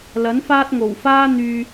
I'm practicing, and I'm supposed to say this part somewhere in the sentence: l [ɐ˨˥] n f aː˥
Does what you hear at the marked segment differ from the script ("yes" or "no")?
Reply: no